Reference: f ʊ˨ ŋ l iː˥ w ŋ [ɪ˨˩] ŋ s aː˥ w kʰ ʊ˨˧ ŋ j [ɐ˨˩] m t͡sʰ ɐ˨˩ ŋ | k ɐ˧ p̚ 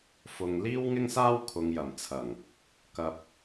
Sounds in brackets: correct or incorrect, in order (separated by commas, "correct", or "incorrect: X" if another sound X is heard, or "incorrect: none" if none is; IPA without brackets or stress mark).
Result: incorrect: ɪ˥, correct